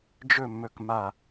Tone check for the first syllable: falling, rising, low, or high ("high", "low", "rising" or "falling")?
falling